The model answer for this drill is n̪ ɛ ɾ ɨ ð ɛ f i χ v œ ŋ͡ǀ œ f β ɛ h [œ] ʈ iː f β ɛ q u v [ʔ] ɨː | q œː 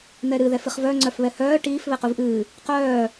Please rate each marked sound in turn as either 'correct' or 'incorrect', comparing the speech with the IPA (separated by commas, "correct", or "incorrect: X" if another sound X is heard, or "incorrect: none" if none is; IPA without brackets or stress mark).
incorrect: œː, correct